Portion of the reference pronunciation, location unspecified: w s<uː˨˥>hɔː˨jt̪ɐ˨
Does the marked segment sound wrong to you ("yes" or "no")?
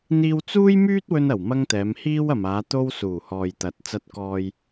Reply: yes